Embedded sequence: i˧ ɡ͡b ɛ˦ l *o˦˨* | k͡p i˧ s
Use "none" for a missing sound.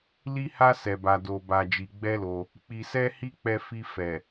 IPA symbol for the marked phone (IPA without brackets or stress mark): o˧